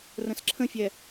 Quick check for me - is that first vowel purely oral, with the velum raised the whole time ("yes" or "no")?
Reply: no